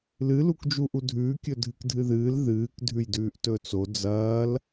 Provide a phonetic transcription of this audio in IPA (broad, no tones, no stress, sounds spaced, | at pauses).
l ɨ l u k d͡ʒ u ʔ u dʱ ʉː kʲ ɵ dʱ ɨ k dʱ ɨ ð ɨː l ð ɨː k dʱ ʉ j d ʉː ʔ t ɵ t͡s o d͡z ɐː l